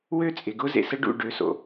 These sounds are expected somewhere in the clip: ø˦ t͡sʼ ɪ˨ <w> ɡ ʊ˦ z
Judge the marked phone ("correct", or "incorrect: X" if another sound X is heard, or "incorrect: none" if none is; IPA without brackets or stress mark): incorrect: none